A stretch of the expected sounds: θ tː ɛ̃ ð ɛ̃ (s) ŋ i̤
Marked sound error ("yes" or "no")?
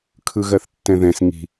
no